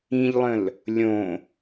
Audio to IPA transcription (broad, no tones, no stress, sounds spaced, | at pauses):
ĩ ʎ lˠ ə̃ l | lʲ õ